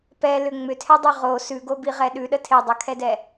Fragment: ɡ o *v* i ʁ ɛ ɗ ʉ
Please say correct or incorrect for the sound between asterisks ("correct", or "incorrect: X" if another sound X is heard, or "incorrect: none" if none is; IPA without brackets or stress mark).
incorrect: b